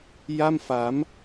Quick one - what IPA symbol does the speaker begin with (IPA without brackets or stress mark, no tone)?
j